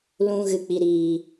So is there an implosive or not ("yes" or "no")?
no